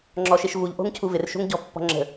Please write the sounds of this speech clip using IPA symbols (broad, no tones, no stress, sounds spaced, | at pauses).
ŋ͡ǁ ɔ ʃ e ʃ v u ʎ ʔ o̤ ŋ cʰ u v ɪ r ʃ o̤ ŋ ɟ ɔ̤ pː ɔ̤ ŋ͡ǁ ə̤